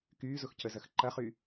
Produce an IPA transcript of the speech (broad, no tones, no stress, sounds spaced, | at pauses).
k yː z ʊ x c ə z ɐ x ǃ ɐ χ y